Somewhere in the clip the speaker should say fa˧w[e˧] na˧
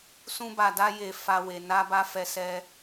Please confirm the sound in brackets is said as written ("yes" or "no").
no